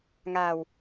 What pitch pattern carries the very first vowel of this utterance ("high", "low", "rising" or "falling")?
low